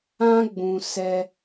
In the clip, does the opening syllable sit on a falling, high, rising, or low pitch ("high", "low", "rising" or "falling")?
high